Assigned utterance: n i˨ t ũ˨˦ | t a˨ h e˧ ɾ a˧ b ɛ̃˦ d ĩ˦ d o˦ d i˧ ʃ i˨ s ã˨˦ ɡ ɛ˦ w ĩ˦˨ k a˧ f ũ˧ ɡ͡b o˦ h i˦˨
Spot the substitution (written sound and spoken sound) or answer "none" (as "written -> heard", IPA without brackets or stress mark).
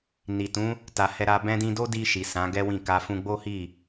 e˧ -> ɛ˧